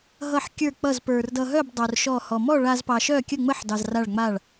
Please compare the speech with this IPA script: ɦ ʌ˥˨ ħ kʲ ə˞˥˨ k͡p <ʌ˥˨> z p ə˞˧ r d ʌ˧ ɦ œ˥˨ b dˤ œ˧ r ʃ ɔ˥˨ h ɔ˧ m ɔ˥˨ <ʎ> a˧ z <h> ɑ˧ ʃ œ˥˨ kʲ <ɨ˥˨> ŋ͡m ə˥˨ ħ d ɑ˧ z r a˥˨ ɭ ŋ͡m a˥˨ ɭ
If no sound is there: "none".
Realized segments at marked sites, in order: ʌ˥˨, ɭ, p, ə˥˨

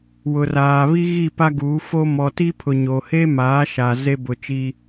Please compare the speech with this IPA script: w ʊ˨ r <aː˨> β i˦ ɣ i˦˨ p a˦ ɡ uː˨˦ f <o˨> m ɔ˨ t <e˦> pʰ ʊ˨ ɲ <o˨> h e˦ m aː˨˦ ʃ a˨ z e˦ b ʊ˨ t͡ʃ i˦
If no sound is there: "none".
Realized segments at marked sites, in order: aː˨, o˦, i˦, o˨

